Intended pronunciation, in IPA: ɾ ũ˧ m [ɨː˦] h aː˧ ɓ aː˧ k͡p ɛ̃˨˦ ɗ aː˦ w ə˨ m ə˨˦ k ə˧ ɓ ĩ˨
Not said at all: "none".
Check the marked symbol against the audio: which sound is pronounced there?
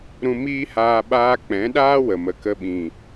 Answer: iː˦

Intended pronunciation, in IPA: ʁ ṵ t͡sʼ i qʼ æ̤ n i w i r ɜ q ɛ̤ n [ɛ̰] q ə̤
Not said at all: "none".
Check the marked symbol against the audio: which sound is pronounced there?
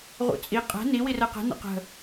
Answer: ə̰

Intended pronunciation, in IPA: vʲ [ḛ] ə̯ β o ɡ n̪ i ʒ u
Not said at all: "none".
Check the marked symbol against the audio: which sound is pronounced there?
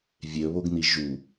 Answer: e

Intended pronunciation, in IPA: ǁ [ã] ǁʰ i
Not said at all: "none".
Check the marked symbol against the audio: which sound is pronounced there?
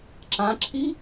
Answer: ã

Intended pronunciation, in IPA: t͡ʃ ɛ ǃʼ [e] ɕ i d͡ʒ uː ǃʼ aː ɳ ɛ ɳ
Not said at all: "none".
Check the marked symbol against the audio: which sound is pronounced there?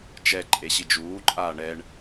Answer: e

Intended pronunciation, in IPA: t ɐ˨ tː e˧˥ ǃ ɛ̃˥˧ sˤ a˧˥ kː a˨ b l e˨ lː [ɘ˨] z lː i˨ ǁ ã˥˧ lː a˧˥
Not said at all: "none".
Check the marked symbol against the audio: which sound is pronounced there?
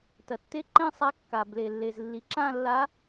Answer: e˨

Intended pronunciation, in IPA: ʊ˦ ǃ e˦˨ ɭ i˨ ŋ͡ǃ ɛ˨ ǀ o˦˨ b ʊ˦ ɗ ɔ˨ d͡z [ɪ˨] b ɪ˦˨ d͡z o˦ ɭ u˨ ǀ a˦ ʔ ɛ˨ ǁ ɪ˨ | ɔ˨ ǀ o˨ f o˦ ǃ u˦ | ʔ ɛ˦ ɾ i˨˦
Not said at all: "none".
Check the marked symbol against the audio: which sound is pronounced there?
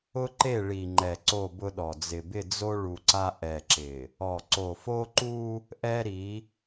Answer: ɪ˨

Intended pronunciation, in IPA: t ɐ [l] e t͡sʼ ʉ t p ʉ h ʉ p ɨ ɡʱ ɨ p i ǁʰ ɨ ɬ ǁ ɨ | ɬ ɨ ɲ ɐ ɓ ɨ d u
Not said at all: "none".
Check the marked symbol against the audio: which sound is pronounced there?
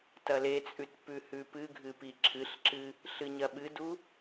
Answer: l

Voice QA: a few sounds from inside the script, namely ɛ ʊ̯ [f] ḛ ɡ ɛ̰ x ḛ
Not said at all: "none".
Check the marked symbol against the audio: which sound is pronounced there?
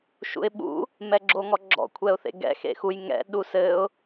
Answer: θ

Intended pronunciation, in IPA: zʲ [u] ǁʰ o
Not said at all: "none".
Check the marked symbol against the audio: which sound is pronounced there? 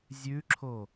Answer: ʉ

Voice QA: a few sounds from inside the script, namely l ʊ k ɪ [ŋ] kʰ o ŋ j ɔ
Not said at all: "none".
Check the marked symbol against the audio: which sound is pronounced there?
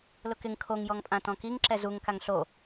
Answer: ŋ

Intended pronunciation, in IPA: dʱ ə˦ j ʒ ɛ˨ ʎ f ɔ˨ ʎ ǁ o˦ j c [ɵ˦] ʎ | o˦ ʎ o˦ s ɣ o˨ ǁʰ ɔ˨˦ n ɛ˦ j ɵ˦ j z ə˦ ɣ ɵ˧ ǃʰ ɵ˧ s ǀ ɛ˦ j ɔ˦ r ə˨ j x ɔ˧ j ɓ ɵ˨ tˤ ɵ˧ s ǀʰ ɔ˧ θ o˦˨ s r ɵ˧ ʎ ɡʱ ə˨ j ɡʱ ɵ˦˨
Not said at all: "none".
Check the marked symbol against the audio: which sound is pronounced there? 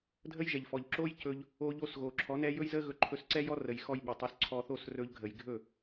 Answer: ɵ˧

